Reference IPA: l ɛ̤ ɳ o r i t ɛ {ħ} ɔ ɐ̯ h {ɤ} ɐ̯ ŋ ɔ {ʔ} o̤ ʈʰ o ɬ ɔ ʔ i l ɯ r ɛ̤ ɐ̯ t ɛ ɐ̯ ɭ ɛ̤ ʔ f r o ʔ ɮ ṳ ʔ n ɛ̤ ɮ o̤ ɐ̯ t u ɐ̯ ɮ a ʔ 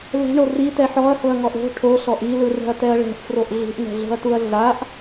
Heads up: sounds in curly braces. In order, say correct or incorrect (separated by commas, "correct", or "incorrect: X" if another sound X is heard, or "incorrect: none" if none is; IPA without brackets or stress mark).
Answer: correct, correct, correct